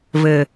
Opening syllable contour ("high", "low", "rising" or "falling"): low